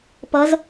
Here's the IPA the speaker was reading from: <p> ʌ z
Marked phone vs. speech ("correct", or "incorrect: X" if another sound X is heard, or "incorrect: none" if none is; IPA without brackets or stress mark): correct